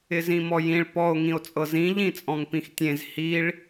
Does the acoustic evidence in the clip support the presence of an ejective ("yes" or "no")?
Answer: yes